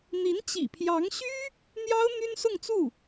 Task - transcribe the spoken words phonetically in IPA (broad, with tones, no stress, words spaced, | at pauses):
n̪i˧˥nt͡ɕḭ˨˩pʰjɑ˧˥ŋɕy˥ | n̪jɑ˥ʊ̯ n̪y˥nsʊ˥˧ŋt͡su˥˩